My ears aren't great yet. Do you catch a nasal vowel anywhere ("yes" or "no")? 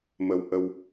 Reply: no